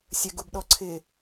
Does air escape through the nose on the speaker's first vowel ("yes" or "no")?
no